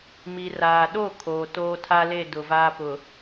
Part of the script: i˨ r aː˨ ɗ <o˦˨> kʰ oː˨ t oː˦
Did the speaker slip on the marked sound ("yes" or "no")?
no